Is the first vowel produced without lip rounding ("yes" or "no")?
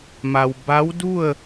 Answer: yes